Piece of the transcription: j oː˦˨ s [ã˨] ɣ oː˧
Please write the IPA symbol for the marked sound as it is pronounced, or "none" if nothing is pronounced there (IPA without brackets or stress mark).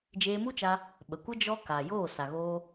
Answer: a˨